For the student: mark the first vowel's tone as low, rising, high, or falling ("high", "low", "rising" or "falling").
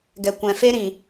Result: low